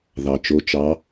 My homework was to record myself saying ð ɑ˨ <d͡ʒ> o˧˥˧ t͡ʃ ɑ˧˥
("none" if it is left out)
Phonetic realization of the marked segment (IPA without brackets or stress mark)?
t͡ʃ